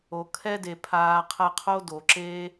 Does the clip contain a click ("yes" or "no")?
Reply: yes